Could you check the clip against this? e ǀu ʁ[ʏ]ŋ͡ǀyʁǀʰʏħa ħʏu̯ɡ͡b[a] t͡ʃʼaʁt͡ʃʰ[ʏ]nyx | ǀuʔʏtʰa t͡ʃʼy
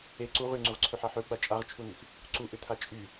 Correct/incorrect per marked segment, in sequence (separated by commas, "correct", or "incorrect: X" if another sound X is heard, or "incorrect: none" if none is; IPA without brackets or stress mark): incorrect: y, correct, incorrect: u